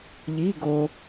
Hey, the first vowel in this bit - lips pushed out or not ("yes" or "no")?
no